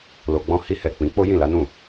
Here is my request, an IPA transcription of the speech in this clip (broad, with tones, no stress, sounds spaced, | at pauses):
l o˨ ɡ͡b ɔ̃˧ h i˧ h ɛ˨ k͡p ĩ˨˦ k͡p o˦ j ĩ˦˨ l a˨˦ n ũ˦˨